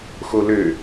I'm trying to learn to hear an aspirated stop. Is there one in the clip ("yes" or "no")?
no